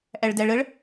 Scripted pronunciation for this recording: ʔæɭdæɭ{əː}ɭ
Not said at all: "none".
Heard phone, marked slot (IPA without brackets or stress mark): ə